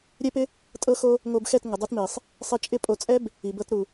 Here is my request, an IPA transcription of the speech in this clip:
ɾʲɛ˦pɪ˦ | tʼɤ˧xo˧ | ŋo˧bxɛ˦˨t ŋə˨dˤo˧tmi˨sˤ | sˤi˧t͡ʃʼɪ˦pʼo˧ t͡sʼɛ˦b | i˨bɤ˦t ɾu˨

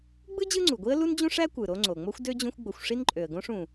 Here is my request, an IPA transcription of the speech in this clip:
ɡ͡bɯ˥d͡ʑɯ˦ŋ͡ǀu˩ɡʷi˦ə̯ lu˥nd͡ʑũ˥ʂæ˥ kʷɯ˩ɾo˦ŋ͡ǀo˩ŋ͡mo˥xʷ dø˥d͡ʑũ˦xʷɡ͡bo˨xʷʂi˥n ǃʼø˩ə̯ɡõ˦ʂũ˩

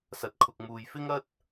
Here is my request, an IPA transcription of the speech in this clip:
sɐ˨˥t̚kʰʊ˨k̚muː˨j fɪ˥ŋɐ˥t̚

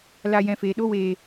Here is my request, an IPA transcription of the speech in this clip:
la˦˨jɛ̃˧feː˨ ɗo˦weː˨

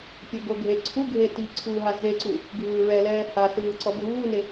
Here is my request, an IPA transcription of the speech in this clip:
pʲɤɡoɡʱe ǀʰuɡʱe tiǀʰuːɦa zeǀu | ɡʱɯːɹɛlɛː hasɯː ǀɔbʱuːne

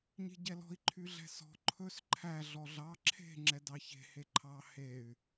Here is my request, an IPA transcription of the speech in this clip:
ɲe̤ɟɛlɔ̤i̯ ǃʰyɮɛ̤sɔ̤ ǃʰɵs ǃʰæ ɮɔɮɑ ǁʰe̤ ŋ͡ǁɛdɑçe̤ heǃʰɑ hey̯

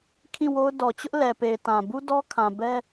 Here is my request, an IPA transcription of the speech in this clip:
kʰĩ˦˨ wo˦ʊ̯ dɔ˨t͡ɕʊ˦ʔ lɛ˨pe˨ɪ̯tã˨ bu˦dɔ˦kʰã˨ bɛ˦

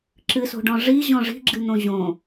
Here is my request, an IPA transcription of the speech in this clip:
ǁɨso̤ɖɔ̃ ʐiʑɔ̃ ʐi̤ɡ͡ǁɨn̪õ ʑõ

